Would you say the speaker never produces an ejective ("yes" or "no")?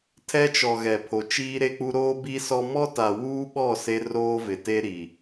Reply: yes